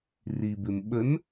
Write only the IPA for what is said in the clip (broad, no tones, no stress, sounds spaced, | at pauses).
r i b ɪ m ɓ ə n